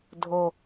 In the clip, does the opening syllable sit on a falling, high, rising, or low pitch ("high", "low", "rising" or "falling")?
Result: low